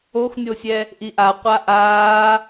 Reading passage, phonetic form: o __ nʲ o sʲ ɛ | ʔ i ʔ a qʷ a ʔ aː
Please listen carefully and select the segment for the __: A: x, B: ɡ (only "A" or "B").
A